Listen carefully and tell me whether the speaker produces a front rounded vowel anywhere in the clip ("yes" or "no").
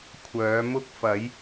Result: yes